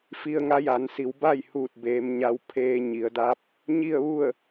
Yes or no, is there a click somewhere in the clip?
no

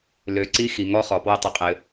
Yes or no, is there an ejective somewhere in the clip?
yes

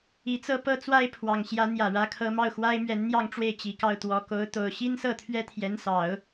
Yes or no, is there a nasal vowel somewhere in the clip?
no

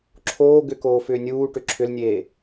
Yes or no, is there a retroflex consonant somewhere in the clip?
yes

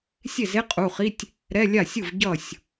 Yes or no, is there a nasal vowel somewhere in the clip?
no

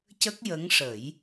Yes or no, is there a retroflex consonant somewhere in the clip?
yes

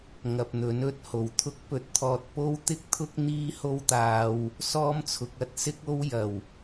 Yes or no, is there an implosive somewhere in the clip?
no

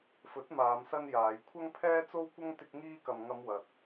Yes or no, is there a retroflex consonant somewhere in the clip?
no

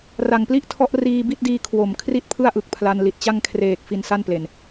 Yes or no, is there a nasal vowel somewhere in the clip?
no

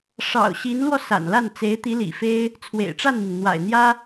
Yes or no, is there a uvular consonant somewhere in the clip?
no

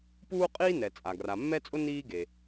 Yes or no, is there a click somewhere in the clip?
no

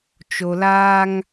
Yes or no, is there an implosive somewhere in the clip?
no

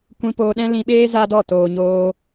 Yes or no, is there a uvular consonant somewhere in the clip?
no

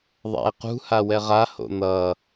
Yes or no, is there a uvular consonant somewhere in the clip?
yes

